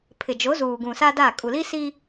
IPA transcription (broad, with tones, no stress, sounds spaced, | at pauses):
pʰ ɪ˨ d͡ʒ o˨˦ z uː˨ ɡ ũ˨ s a˦ d a˦˨ kʼ u˨ l i˦ s i˦